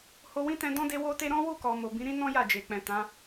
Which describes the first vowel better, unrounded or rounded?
rounded